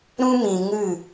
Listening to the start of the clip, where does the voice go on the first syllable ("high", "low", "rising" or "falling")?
high